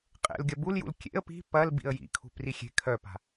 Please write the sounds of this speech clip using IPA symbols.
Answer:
qʼḛlɡʲɐ buljṵl kʲḛə̯ pi̤ pɐl bḭə̯jḭkʰṳ prixʲe̤ kʰœpa̤

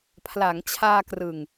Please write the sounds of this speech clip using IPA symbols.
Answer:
pʰla˩˦ŋt͡ɕʰaː˧krɯ˨˩ŋ

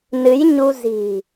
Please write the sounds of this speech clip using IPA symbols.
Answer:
nɨ˨˦j ɲu˧zi̤˨˩

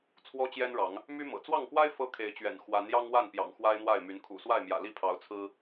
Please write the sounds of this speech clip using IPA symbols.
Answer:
t͡sʰwɔ˦t͡ɕjɛ˦nɻɑ˨˦ŋ | my˦mɤ̰˨˩ t͡swɑ˥˨ŋkwa˦ɪ̯ fɤ˦kʰe˨˦ɪ̯t͡ɕɥɛ̰˨˩n xwa˨˦njɑ˦ŋwa˥˨npjɑ̰˨˩ŋ xwa˦ɪ̯n̪wa˥˨ɪ̯my˨˦n kʰṵ˨˩swa˥˨ɪ̯mjä̰˨˩ li˥˨pʰɑ˨˦ʊ̯ t͡sʰɹ̩˦

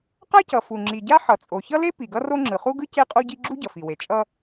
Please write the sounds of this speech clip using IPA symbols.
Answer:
qa˥cʌ˩fu˩ ŋ͡ǁi˩ɟa˥ ħʌ˩t͡sʼo˩çʌ˥le˥ pi˩ɡʌ˥ro˥ ŋ͡ǁɯ˩χu˥ɡɯ˥ ce˥qʼo˥ɟi˥ ɡ͡ǁu˥ɟʌ˩fi˩we˩ t͡ʃʼʌ˥

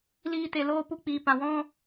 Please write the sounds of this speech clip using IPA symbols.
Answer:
liː˧te˨ loː˧pu˧k͡piː˨ pã˨wɔ̃˦

